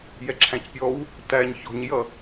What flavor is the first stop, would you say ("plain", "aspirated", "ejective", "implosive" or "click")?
click